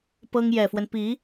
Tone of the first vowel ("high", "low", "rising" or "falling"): high